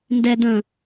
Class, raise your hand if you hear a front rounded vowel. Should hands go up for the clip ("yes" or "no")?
no